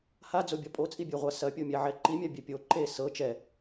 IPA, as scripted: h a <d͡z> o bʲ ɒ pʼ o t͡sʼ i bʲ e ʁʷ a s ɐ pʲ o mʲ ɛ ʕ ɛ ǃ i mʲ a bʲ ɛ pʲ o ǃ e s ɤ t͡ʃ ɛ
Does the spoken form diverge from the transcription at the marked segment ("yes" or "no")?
no